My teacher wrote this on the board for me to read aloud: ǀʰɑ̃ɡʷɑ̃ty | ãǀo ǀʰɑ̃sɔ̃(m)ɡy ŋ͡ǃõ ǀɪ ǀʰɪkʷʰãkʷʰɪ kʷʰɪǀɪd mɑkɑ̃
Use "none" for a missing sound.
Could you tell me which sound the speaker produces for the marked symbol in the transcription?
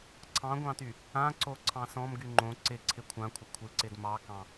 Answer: m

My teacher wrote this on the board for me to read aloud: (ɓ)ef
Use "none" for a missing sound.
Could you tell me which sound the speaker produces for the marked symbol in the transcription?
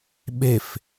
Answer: ɓ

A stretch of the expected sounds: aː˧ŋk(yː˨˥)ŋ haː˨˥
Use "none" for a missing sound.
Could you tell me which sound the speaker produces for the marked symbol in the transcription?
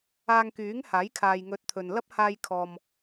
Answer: yː˨˥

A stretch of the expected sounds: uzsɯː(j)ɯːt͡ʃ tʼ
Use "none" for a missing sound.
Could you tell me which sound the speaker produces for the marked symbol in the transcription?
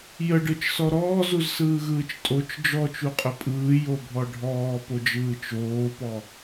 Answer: ɣ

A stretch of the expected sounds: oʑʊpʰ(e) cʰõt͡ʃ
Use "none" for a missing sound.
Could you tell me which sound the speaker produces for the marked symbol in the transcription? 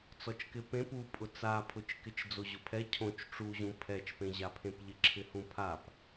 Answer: ɛ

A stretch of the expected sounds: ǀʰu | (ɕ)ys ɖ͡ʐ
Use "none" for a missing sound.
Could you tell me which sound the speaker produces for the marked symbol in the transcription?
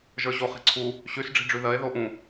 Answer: ɕ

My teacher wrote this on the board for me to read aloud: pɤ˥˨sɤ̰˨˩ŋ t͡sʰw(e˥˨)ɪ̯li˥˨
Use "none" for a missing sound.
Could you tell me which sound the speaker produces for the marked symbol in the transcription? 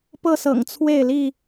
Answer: e˥˨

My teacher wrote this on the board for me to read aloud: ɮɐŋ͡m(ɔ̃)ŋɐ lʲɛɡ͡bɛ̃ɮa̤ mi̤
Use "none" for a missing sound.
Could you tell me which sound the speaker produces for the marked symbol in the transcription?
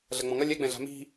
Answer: ɔ̃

